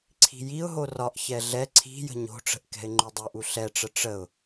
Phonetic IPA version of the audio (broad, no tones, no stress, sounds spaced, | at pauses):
ǀʰ i̤ j i ʊ̯ ɦ o r ɒ ʔ ç ɛ ɮ ɛ ǀʰ i̤ j ə̤ ɲ o̤ ʈ͡ʂ ə̤ ʔ k ɛ̤ ɪ̯ ŋ͡ǃ u dˤ u ʔ u ɬ ɛ ʈ͡ʂ ə ʈ͡ʂ ə ʊ̯